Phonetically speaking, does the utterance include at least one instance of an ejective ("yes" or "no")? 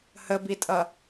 yes